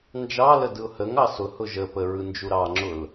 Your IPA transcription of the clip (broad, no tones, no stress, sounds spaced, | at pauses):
n d͡ʒ ɑ l ə d ɯ ʊ̯ h ə ŋ ɑ s ʊ h ʊ ʒ ə p ə ɹ ɯ n d͡ʒ u ɾ ɑ ŋ͡ǁ ʊ l